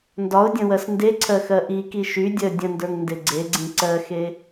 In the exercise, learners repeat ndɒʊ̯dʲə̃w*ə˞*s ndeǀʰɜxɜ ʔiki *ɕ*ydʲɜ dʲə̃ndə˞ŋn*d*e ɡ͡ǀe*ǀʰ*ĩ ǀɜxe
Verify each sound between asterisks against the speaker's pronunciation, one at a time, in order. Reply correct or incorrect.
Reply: incorrect, incorrect, correct, incorrect

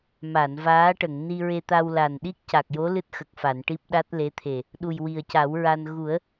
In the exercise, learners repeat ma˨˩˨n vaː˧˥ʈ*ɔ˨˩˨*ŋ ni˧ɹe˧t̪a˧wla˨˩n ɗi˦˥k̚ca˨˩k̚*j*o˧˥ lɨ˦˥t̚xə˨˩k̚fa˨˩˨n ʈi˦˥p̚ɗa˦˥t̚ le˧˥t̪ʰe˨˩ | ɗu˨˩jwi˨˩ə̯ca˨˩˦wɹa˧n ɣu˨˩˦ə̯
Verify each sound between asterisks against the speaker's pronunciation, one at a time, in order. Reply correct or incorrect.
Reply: incorrect, correct

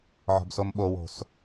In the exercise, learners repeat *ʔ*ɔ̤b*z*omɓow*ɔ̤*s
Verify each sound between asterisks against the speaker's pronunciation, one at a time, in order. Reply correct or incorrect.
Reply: incorrect, incorrect, incorrect

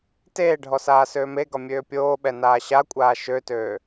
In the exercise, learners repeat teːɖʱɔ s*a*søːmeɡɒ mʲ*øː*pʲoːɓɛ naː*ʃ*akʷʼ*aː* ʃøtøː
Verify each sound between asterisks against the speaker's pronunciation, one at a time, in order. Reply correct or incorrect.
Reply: incorrect, correct, incorrect, correct

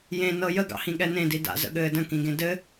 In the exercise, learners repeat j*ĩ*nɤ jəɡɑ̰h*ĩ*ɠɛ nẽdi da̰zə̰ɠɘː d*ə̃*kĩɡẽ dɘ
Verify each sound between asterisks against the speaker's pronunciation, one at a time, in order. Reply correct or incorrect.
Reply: incorrect, correct, correct

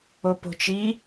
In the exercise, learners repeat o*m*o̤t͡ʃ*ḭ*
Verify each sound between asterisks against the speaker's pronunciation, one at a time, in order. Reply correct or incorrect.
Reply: incorrect, incorrect

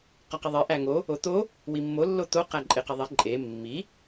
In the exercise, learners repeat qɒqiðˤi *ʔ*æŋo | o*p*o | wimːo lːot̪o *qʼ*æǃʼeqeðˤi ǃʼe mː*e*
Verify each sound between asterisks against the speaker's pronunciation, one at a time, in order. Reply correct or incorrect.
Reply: correct, incorrect, incorrect, incorrect

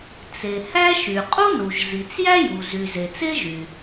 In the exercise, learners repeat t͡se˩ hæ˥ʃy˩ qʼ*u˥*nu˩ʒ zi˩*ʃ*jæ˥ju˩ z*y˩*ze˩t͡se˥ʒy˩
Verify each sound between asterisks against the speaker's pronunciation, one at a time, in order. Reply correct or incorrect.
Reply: correct, incorrect, correct

